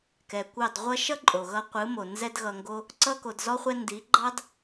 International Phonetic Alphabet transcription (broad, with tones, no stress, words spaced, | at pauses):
kɛ˨kʷɑ˦˨d ʁʷʌ˧ʃʌ˦ ǃʼo˨ɣʌ˧ qʷɯ˨˦mo˨ nzɛ˦dɣʌ˧ŋɡo˦ | ǀʌ˧ko˨dzɔ˧χʷɛ˧ ndi˨˦ɡ͡ǃɑ˦d